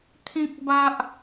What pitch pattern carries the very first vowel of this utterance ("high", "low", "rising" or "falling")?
high